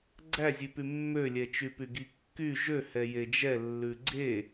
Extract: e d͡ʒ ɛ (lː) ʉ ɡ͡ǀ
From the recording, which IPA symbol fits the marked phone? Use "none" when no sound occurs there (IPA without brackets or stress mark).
lː